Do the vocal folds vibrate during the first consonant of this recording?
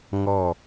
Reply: yes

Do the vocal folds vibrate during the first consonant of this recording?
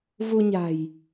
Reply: yes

